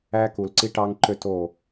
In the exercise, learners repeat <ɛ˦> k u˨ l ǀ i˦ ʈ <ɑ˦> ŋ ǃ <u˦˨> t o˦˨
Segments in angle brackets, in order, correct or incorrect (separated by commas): incorrect, correct, incorrect